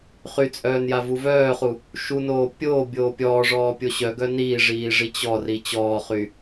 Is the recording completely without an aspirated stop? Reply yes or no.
yes